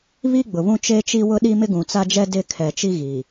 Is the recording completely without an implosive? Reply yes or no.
no